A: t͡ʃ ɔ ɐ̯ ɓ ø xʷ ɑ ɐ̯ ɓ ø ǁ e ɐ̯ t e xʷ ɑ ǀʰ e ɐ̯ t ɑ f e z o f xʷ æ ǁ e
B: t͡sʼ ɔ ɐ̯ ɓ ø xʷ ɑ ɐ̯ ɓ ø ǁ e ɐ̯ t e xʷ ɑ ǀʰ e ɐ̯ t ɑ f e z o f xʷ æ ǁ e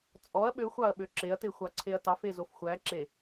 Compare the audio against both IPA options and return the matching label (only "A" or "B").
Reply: B